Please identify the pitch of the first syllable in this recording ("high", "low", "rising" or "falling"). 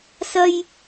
high